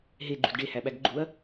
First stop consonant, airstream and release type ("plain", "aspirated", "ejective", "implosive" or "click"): click